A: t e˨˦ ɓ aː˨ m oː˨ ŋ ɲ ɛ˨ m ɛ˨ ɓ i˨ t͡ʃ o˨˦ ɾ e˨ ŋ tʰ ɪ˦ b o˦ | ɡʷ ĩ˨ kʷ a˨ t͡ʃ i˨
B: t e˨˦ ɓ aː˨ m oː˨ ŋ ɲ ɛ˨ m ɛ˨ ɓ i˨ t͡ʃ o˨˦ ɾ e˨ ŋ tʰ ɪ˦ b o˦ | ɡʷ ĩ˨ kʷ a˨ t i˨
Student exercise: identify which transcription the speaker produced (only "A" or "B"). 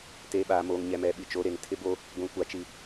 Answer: A